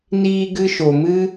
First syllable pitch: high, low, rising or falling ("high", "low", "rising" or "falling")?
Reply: high